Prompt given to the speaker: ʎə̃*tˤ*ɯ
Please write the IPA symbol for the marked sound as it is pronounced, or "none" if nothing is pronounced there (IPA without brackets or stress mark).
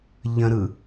ɾ